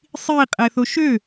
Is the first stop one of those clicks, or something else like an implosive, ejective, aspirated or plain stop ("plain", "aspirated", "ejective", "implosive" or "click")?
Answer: ejective